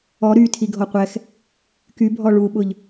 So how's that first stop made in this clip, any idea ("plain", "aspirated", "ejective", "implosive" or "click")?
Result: aspirated